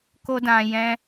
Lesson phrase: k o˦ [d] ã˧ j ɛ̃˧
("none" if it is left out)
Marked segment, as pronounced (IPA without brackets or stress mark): d